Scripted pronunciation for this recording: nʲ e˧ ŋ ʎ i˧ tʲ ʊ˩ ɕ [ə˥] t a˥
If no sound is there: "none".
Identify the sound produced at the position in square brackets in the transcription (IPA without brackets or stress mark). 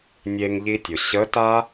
ə˧˥